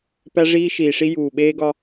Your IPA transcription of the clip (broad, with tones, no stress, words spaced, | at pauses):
pæ˦ʐiː˦ʃiː˨ʂi˦ juː˨ɓeː˦ɡɒ˦